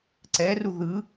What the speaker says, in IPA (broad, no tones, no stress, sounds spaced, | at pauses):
ǀ ɛ r u ð ɯ